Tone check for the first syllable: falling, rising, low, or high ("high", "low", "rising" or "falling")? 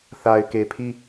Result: low